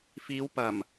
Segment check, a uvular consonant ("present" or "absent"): absent